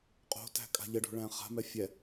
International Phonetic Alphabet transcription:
qʼ o̤ t æ̤ kʼ a̤ ʎ ə ɖ o̤ ɭ æ̃ χ a̤ m ɛ fʲ ɛ

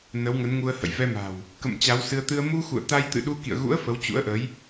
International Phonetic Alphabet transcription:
n ə˨˦ w ŋ ə˨˦ n ŋ u˧ ə̯ h ə̰˧˨ j v ɛ˧ m a̤˨˩ w | k ə̰˧˨ m t͡ɕ a˨˦ w s ɨ˧ ə̯ t̪ ɨ˧ ə̯ m u˧ x ṵ˧˨ ə̯ t̪ a˧ j t̪ ɨ̰˧˨ ɗ u˧ k ḭ˧˨ ə̯ ɣ ṵ˧˥ ə̯ f ə˨˦ w t͡ɕ ṵ˧˥ ə̯ ʔ ə˨˦ j

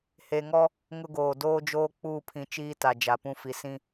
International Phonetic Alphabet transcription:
h e˨ ŋ ɔ˦ | ŋ ʊ˦ ɡ oː˨ d oː˦ d͡ʒ oː˦ k͡p uː˦˨ pʰ ĩ˨ t͡ʃ iː˦ t a˨ d͡ʒ a˨ p ũ˦ f i˨ s ĩ˦

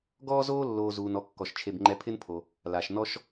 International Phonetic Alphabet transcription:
ɡ ɔː˥ z oː˥ lː oː˨ z uː˩ n ɔ˨ kː ɔ˩ ʃ t͡ʃʰ e˨ b ŋ͡ǃ ɛ˨ pʰ ɪ˦ n pʰ o˩ | l a˩ ʃ n ɔ˥ ʃ

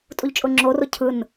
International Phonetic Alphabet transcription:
tʼ u ʎ t͡ʃʼ ʊ ŋ͡ǁ o r o cʰ ɯ n

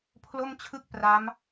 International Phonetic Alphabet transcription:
pʰ l o˥˩ m t͡ɕʰ ɯ˥˩ k̚ p r a˦˥ m

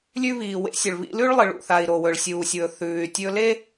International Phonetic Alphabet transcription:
lʲ ʉ˧ β iː˩ w ḛ˧ sʲ ɵ˩ ɭ β ḭ˧ l ʉ˥ ɭ lˠ ɨ˩ ɭ ṵ˩ θ a˩ i̯ ɾ o˩ w ɵ˩ ɭ sʲ uː˩ sʲ w ɵ˩ θ ʉː˩ y̯ tʲ ɵ˧ l e˥

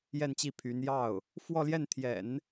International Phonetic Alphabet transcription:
j ɛ˥˧ n t͡ɕ i˥˩ pʰ y˧˥ n j ɑ˥˩ ʊ̯ | f w ɔ˥˧ l j ɛ˥˩ n t̪ʰ j ɛ̰˨˩˦ n

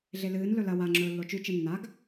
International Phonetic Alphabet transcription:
ɮ e l ɨː n l ɵ l ɐ w a ŋ͡ǁ ɵː lː o t͡ʃ ʉ t͡ʃ ɨ nː a ɡ

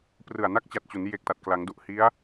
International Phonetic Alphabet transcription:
p r ɯ˨˩ a̯ n a˥˩ k̚ t͡ɕ a˨˩ t̚ t͡ɕ u˩˦ n j e˨˩ k̚ t a˨˩ t̚ k l a˩˦ ŋ d u˨˩ ʔ h i˦˥ a̯

